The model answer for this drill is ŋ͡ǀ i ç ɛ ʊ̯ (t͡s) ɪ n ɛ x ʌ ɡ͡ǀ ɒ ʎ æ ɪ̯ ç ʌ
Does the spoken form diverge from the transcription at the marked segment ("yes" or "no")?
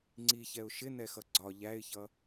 yes